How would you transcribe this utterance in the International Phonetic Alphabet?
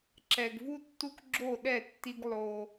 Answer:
ǁɛ˨ɡvu˦tːu˦k ɡ͡ǁo˦˨ ɗɛ˦˨tːi˦ɡ lˠo˦

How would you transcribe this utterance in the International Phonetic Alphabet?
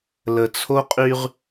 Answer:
lə˨t͡sʰo˦qʼy˦ʁ

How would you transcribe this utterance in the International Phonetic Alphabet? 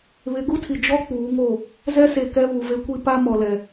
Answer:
βɪ˨˦ ɡu˦tʰi˨ d͡ʒɔ˦ k͡puː˨˦ŋo˦˨ | zɛ˦se˨kɛ˦ βu˨ve˦kʷi˦ pa˦mɔ˨lɛ˨

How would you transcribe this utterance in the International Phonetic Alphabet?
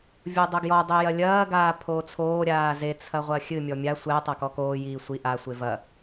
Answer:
vʲodˤoɡjɔ dˤijɐlʲɐː ɡaːpʰoːt͡sʰoː ɾʲaːze t͡sʰɐʁʷɐxʲɨ mʲɔmʲa sʷɛ tˤakɔkoː jiːsʷi ʔa sʷevɐ

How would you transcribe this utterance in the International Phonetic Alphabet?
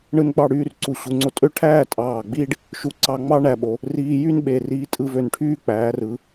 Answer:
ɳɯ˧n ɡ͡bɑ˥˧ɽyː˥˧r ǀu˧˩ɕu˩˧ŋ͡ǀo˧tʼø˥˧ ʈʰæː˥˧ tʼɑː˧˩ ɡ͡biː˥ɖ | ʃu˧ ǀɑ˧ŋ͡mɑ˥ɳæ˧ɓo˩˧ | riː˧jy˥nɓe˧˩ riː˧tʼɯ˧ vø˧˩nʈʰyː˥ k͡pæː˩˧rɯ˩˧

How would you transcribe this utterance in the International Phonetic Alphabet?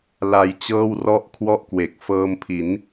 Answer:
la˧jt͡ɕɤː˥˩wrɔ˥˩ʔ kʰwɔ˥˩ʔkwe˨˩k̚ fɤː˧mpʰi˩˦n

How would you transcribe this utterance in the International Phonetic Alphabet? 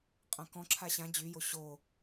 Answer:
qʼãkɔ̃ ǁʰaɕã d͡ʑyjo ɕo

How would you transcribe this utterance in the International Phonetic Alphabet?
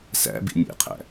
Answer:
sæ̰bḭ nʲḛqʰæ̰

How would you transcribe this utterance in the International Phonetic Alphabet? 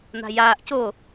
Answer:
n̪a̤jaːʔ co

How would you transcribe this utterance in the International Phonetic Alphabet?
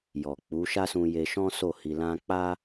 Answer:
jɔ˨ k͡pu˨˦ ʃa˦sũ˧je˧ʃɔ̃˦ so˦˨hi˧lã˦ k͡pa˦

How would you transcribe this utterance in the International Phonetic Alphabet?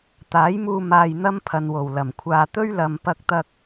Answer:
t̪aː˨˥jmuː˧ maː˧jn̪ɐ˥m pʰɐ˨nwo˨˩w lɐ˨˩mkʷʰaː˧ t̪ɵ˥ɥlɐ˨mpɐ˧k̚t̪ɐ˧k̚

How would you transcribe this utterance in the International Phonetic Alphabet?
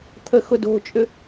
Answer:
t̪ʰəxʊdo̤t͡ʃʼʏ

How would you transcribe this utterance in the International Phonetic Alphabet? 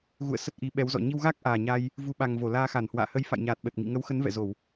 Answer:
ɣṵ˧˨ə̯ sə˦˥t̚ʔi˨˦ ɓɛ˨˦wzɔ̰˧˨ ɲi˧wɣa˦˥k̚ʔaː˨˩ɲa˧j | vu˨˦ɓa˨˩ŋ vo˧˩laː˧xa˧˩nhwa̰ː˧˨ hə˨˦jfa̰˧˨jɲaː˨˩t̚ɓə˨˩t̚ ŋḭ˧˨ŋə˨˦wxə˨˦n vɛ̰˧˨zo˧˩˨w

